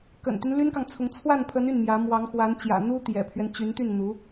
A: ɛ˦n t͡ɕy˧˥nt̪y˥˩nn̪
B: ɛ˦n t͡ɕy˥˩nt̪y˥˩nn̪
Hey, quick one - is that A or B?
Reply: A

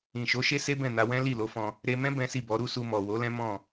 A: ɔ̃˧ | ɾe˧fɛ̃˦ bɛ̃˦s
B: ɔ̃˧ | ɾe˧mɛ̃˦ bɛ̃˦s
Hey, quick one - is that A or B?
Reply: B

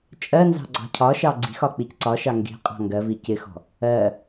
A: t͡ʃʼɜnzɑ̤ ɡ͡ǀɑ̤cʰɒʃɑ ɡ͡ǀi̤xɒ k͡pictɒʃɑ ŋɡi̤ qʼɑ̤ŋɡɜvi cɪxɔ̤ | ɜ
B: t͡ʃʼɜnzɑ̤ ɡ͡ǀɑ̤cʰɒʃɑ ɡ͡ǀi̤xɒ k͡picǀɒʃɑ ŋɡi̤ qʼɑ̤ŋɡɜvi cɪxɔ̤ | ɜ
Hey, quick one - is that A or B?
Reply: B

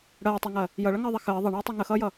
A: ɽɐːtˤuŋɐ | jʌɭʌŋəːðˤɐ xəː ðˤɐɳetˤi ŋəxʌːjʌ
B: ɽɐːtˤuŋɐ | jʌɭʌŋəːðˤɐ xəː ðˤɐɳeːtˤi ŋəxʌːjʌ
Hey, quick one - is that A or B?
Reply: B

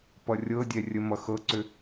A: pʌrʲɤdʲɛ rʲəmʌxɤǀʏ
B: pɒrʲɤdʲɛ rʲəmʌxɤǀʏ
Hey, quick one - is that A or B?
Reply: A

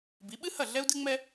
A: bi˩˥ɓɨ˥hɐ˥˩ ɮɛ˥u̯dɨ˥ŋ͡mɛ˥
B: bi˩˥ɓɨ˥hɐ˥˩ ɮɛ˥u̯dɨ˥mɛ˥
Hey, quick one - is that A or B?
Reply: A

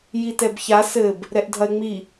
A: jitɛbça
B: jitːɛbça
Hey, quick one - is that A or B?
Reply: A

